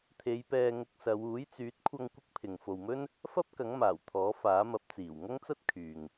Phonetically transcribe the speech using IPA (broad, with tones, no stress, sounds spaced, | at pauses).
t̪ʰ e˨˧ j p ɛː˧ ŋ ʊ˧ k̚ s ɐ˨˧ w uː˨˥ j t͡s yː˨˥ t̚ kʷʰ ɐ˧ ŋ kʷ ɪ˥ k̚ pʰ ɪ˨ ŋ f o˨ w m ɵ˥ n | f ɐ˥ p̚ k ɐ˨˥ ŋ m aː˨˩ w t̪ʰ ɔː˨˥ f aː˨˥ m ɐ˨˥ p̚ t͡s iː˨˩ w ŋ ɐ˥ ŋ t͡s ɐ˥ t̚ kʰ yː˨ ŋ